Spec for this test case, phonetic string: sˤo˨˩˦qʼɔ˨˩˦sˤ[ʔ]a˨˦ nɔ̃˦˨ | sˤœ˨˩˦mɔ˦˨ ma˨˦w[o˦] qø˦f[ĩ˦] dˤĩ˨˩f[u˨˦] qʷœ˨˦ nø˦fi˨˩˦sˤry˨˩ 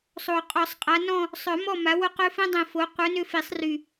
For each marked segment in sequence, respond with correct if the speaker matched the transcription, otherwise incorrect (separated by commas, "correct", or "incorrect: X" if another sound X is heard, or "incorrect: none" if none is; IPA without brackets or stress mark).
incorrect: qʼ, correct, correct, incorrect: o˨˦